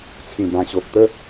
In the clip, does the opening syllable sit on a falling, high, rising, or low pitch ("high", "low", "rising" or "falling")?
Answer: low